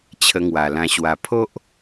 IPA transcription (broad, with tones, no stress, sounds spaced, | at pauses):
t͡ɕʰ ə˧ ŋ w a˨˩ l ã˧ ɕ w a˨˩ pʰ o˦ ʔ